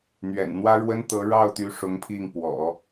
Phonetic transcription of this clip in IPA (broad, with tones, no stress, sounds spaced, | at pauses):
n̪ ɥ ɛ̰˨˩ n n̪ w ä˥ ɻ w ə˥ n t̪ ɤ˧˥ ɻ ɑ˥˩ ʊ̯ t̪ y˧˥ ʂ ʊ˧˥ ŋ pʰ i˥˩ ŋ p w ɔ̰˨˩˦